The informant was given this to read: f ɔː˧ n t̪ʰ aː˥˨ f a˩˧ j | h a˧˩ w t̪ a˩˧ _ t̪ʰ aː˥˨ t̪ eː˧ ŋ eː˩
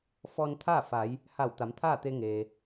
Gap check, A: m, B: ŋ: A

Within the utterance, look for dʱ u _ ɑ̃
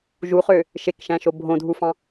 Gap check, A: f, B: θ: A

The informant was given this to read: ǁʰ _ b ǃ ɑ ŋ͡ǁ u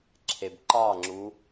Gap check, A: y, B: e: B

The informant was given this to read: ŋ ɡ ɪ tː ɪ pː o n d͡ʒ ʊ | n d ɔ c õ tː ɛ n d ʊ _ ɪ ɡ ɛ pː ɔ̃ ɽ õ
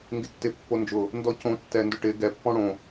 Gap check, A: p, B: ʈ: B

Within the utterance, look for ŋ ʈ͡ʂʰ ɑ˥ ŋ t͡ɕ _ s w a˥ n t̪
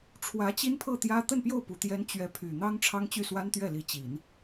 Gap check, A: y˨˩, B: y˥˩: B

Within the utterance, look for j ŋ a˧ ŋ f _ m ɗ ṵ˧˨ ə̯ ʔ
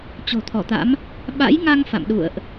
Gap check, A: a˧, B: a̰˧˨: B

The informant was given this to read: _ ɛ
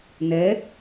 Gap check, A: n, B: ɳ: A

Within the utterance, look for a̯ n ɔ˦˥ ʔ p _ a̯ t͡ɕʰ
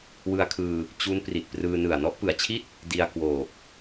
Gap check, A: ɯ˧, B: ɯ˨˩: B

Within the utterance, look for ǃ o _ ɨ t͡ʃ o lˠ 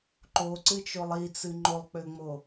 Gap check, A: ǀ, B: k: A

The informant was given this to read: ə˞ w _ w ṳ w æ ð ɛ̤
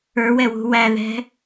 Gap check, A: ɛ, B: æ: A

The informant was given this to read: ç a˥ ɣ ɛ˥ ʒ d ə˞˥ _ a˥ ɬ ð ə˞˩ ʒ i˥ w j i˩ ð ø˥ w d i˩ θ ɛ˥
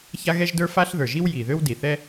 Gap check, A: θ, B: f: B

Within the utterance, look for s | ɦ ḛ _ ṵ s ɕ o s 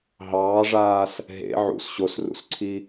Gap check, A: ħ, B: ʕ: B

